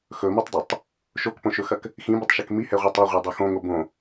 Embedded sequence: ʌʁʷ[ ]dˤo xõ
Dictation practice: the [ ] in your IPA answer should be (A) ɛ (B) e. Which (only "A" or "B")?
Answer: A